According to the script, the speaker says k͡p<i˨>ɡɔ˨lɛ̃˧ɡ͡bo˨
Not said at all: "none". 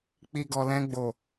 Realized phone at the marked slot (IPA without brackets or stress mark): i˨